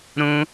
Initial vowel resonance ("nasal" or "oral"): nasal